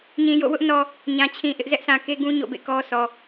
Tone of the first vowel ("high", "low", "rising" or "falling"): low